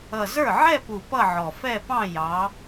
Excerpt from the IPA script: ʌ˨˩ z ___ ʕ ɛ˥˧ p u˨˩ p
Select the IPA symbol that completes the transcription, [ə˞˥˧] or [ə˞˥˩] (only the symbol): ə˞˥˩